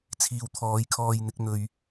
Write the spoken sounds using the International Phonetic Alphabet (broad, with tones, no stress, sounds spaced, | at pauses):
t͡sʰ iː˨ w t̪ʰ ɔː˨˥ j kʰ ɔː˧ j n̪ ɪ˨˥ k̚ n̪ ɵ˧ ɥ